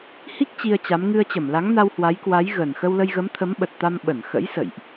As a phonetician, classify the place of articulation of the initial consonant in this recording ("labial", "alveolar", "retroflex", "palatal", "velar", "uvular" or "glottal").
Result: glottal